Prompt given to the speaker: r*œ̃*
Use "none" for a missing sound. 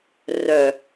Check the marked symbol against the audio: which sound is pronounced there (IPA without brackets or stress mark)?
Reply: œ